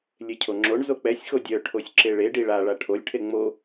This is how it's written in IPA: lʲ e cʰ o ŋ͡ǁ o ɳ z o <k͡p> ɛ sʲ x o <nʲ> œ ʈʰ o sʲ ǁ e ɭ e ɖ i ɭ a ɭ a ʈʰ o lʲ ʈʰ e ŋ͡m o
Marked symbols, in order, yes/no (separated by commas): yes, no